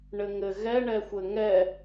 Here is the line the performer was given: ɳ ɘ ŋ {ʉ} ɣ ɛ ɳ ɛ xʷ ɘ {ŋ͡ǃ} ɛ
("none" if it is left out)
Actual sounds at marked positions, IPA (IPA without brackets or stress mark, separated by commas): ɘ, ŋ